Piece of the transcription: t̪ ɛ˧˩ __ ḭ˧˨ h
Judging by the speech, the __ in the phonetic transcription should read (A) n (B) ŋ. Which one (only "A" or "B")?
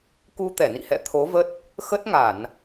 A